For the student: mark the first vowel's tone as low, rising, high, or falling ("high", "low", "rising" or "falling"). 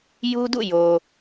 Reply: high